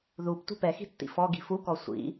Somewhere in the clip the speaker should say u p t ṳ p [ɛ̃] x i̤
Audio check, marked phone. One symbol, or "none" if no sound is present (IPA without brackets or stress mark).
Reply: ɛ